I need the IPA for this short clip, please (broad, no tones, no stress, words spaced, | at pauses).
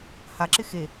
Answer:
haǁɪ xe